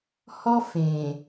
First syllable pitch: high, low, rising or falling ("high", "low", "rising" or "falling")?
high